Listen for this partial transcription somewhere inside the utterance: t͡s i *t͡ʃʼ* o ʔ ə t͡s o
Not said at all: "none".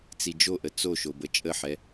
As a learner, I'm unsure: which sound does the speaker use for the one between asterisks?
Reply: d͡ʒ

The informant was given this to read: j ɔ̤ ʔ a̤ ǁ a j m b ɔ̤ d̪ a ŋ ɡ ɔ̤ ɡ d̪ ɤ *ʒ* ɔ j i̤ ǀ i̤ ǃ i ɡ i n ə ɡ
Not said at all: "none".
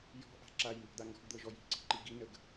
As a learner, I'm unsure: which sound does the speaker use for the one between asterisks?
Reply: ʒ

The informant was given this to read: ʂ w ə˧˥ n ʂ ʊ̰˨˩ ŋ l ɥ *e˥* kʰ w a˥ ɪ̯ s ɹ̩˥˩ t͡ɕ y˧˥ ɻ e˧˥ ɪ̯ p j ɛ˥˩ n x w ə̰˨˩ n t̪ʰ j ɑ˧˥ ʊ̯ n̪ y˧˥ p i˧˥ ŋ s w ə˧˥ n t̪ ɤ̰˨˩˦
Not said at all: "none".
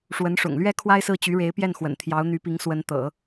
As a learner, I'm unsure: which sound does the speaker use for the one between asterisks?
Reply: ɛ˥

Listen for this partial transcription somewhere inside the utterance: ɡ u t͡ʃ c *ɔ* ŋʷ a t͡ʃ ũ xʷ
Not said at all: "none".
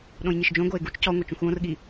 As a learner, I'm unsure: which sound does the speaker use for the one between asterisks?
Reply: ɔ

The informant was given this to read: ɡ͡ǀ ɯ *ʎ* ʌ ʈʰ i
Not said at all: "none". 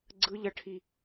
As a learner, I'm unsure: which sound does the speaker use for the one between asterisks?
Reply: ʎ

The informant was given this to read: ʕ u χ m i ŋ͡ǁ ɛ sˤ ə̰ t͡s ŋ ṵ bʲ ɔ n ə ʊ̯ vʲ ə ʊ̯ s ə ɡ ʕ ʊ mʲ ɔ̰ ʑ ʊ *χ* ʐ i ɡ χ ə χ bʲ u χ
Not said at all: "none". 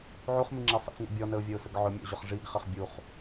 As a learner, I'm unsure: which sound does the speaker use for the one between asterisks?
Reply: χ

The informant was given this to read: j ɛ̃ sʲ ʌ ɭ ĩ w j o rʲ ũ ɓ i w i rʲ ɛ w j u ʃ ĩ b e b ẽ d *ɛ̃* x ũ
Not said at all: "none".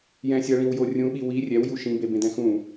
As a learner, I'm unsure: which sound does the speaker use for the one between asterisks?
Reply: ɛ̃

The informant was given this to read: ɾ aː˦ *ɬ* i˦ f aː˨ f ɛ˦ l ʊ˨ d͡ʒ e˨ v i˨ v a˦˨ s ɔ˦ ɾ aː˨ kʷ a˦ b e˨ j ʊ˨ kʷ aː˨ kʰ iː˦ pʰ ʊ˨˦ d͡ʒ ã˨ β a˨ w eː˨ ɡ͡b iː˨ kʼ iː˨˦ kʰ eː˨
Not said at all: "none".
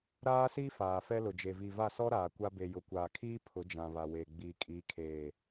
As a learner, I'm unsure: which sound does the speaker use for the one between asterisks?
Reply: s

